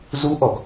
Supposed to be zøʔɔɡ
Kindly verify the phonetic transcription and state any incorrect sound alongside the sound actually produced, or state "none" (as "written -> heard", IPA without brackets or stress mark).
ø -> u